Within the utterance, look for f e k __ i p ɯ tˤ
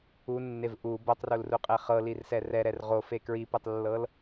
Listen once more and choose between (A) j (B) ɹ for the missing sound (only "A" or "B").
B